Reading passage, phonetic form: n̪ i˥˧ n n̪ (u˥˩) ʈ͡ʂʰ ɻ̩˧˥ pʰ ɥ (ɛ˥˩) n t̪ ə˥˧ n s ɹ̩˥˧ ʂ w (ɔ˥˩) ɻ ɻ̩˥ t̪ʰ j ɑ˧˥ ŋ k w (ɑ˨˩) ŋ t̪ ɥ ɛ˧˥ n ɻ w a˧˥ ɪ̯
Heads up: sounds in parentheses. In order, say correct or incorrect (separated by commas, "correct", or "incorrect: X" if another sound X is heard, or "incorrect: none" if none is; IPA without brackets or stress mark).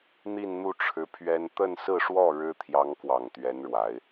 correct, incorrect: ɛ˥, correct, correct